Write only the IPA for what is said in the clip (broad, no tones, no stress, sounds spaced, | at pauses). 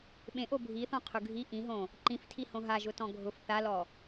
ɓ ẽ ʔ o bʱ i θ ɔ̃ qʰ ʊ ɡʱ i ʔ ĩ ɦ õ | ǃ ĩ f tʰ i h õ ɦ a ʒ ʊ t ɔ̃ ɡʱ ʊ f θ a l ɔ